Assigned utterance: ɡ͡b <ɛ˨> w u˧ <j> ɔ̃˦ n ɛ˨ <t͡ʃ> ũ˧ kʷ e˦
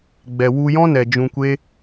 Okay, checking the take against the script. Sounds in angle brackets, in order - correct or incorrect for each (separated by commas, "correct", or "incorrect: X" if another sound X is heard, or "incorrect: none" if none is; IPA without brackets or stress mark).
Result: correct, correct, incorrect: d͡ʒ